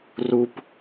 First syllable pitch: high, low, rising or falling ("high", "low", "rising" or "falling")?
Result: high